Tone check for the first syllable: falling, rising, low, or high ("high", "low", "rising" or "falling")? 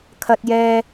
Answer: high